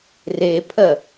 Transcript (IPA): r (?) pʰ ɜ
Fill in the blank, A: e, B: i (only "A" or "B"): A